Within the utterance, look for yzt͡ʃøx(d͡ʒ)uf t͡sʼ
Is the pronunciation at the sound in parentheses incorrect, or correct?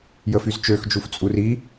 correct